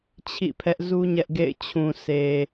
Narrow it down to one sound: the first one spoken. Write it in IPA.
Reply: t͡ɕʰ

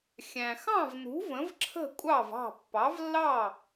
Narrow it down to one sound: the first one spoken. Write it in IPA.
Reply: xʲ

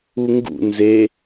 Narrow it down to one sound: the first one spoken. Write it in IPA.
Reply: u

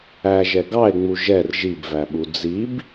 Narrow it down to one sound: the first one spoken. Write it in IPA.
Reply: æ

